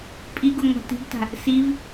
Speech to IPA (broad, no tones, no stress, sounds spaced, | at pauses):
pʼ i ɡ u ŋʷ a̤ t i̤ ɡ t a̤ | s i v